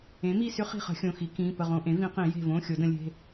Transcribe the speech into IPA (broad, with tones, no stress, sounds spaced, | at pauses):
ẽ˩˥ m i˦˨ s ʏ˦˥ χ i̤˦˨ χ ə̤˨˩˦ xʲ õ˩˧˩ x i˨˩˦ k ĩ˩˧˩ p ə˦˨ ʁ õ˧˥˧ ʔ ẽ˩˥ v ĩ˨˩˦ q ĩ˨˩˦ j e̤˦˨ v õ˧˥˧ xʲ o˨˩˦ d ə̃˨˩˦ lʲ e̤˩˧˩